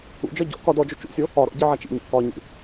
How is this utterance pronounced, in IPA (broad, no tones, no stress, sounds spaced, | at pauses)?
ṵ d͡ʒ ɒ ɟ ɔ̰ k ɒ d ɔ d͡ʒ o t͡ʃ ṵ sʲ o | ɒ ɾ ɔ̰ ɟ i ʕ a t͡ʃ ḭ ɲ ɔ̰ k ɒ ɲ ḭ